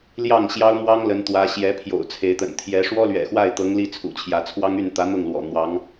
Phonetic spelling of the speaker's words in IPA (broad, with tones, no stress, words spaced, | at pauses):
ljɑ˥˩ŋɕjɑ˥ʊ̯mwɑ˥ŋ lə˧˥nt̪wä˧˥ ɕjɛ˧˥ pʰjo̰˨˩ʊ̯t͡sʰe˧˥ɪ̯t̪ə̰˨˩n t̪ʰjɛ˧˥ ʂwɔ˥lɥɛ̰˨˩xwa˥˩ɪ̯t̪ɤ˧˥ŋ li˥˩t͡sʰṵ˨˩t͡ɕʰjä˧˥t͡sʰwɑ˥ŋ y˥˩nt̪ä˧˥n̪ʊ˥˩ŋ lwɔ̰˨˩n̪wɑ˧˥ŋ